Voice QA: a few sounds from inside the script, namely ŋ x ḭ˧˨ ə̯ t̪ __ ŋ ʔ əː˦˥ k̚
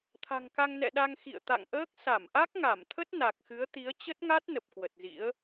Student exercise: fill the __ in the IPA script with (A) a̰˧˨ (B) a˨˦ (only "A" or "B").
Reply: A